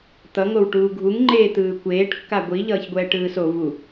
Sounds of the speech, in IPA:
t̪ ʌ ŋ o w ʈ uː ɡʱ u ŋ ŋ͡ǃ eː t̪ ɯː kʷ eː ʈ kː a ɡʷ i ʎ ʌː ç ɡʷ ɛː ʈ ɯː s o v u

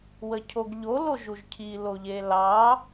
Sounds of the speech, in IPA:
w ə cʰ o ɡ ʎ o l o ʒ u ʒ cʰ i l o ʎ e l ɑ

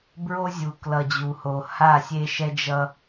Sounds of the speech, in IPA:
b ɹ o˦ zʲ u˨ k l ʌ˨ d͡ʑ u˨ h o˨ h a˦˨ sʲ e˦ ʃ ɛ˦ d͡ʒ ʌ˦

